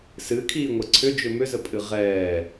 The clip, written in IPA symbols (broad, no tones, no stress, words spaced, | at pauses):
sɨkʰiːŋʷɛ ǀʰʏd͡ʒʏ mʏzəpʼɨ ʁɛː